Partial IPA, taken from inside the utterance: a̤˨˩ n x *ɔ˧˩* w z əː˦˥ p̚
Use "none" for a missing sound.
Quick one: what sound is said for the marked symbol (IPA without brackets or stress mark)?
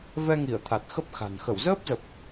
ə˧˩